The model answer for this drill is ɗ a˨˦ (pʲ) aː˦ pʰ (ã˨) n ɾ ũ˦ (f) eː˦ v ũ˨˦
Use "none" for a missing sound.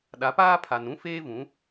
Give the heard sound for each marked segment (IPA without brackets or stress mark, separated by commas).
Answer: p, a˨, f